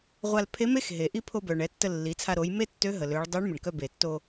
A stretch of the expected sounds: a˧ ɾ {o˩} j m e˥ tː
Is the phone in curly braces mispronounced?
yes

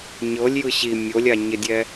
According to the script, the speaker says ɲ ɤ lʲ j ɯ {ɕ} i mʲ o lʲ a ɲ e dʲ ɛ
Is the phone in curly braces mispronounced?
no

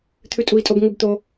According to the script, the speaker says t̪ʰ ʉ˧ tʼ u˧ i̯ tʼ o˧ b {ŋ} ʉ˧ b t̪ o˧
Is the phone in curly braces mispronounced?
no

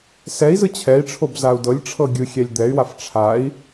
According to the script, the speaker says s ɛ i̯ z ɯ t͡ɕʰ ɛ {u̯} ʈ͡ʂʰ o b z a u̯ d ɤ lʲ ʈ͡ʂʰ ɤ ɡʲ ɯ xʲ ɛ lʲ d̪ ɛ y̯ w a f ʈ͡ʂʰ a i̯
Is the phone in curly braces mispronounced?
yes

